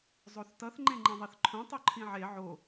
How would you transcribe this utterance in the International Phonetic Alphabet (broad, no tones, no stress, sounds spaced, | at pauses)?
zˤ o θ t ʌ θ ŋ͡ǃ ẽ ŋ͡ǃ ẽ ðˤ e θ ǃʰ õ tˤ o ǃʰ ĩ ʕ e ʕ o